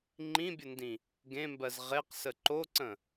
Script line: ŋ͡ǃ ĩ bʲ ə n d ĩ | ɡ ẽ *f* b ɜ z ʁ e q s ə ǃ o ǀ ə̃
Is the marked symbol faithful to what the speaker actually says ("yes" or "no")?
no